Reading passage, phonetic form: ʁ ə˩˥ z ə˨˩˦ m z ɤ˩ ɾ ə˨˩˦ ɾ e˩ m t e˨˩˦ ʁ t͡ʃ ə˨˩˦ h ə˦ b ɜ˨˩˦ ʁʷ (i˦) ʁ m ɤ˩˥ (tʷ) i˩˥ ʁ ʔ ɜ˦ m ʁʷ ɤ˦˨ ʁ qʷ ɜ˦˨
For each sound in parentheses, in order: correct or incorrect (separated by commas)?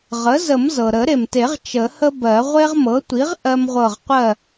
incorrect, correct